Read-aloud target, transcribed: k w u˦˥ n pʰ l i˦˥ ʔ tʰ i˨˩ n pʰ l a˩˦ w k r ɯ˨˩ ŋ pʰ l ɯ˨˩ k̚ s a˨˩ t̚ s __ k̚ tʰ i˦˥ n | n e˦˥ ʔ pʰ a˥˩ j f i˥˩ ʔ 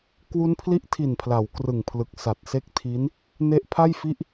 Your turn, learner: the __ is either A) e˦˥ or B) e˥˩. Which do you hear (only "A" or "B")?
A